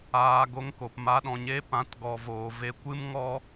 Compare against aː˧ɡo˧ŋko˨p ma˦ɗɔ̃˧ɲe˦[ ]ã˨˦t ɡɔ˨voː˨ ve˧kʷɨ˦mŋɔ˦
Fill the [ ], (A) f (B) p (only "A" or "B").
B